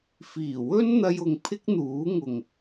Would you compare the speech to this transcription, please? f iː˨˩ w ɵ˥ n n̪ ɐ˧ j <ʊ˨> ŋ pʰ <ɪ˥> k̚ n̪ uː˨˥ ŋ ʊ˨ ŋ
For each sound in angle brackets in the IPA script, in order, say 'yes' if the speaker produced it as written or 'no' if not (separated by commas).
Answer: yes, yes